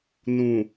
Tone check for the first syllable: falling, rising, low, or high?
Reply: low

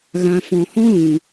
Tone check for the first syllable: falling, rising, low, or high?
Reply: low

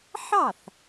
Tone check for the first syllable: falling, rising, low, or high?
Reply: falling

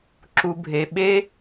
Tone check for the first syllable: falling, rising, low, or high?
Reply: low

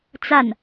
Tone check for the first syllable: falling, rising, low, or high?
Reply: falling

